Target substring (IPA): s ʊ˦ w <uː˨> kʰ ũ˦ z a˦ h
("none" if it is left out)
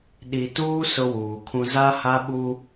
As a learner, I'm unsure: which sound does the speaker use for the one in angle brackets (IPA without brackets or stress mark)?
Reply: uː˨